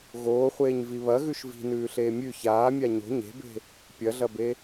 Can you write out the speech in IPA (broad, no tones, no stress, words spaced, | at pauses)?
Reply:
ɣoːχʷeːɲvi βɐɣʉʃ vi̤nʉːɬeː mʲʉ çaːmʲa ɲo̤ ɲe̤be̤ | pʲɐɮɐbe